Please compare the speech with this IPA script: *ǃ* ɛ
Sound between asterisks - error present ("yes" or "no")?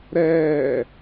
yes